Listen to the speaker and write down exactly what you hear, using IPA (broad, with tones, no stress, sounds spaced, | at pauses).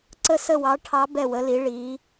ǀ ə˧˩ s ə˧˩ w ɑ˩˧ ʈʰ ɑ˩˧ b ɛ˧˩ w ə˩˧ l i˩˧ ɭ i˩˧